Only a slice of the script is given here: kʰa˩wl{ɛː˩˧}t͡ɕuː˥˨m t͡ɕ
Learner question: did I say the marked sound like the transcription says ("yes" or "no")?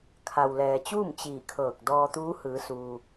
no